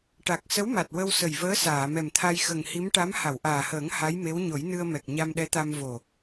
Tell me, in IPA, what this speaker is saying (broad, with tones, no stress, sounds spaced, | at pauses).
ʈ a˨˩ k̚ s ə˧˥ w m a˨˩ t̚ w ə˧ w s ə˨˩ j v əː˧˥ s aː˨˩˨ m ɛ˨˩ m t̪ʰ a˧ j x ə˨˩ ŋ h i˧˥ m ʈ a˧˥ m h a˨˩˨ w ʔ aː˨˩ h əː˨˩˦ ŋ h a˧˥ j m e˧˥ w ɲ o˨˩˦ j n ɨ˧ ə̯ m ɛ˨˩ k̚ ɲ a˧ m ɗ ɛ˧˥ t̪ a˧ m v o˨˩